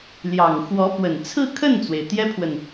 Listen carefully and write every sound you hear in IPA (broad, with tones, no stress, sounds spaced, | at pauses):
l j ɑ˨˩ ŋ x w ɔ˧˥ p w ə˨˩ n t͡sʰ ɹ̩˥˧ kʰ ə˥˩ n t͡s w e˩ ɪ̯ t̪ j ɛ˥ pʰ w ə˨ n